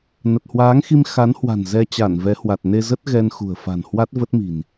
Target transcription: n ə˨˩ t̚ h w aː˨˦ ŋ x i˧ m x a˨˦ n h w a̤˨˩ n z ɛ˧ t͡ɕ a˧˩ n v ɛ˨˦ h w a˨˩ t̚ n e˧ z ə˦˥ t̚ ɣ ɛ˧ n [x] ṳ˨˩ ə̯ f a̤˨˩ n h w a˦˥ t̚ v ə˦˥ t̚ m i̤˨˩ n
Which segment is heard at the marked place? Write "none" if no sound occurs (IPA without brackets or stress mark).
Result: x